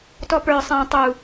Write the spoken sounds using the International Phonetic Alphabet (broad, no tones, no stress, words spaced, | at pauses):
tɔpə˞ sˤæ̃ tˤu